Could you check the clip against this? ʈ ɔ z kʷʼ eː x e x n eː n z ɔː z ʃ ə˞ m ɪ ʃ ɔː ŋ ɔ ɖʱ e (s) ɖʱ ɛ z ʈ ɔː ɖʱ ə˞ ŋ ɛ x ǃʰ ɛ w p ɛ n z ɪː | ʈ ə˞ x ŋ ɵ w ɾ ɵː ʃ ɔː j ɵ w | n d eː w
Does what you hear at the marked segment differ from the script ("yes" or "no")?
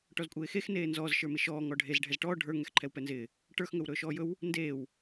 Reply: yes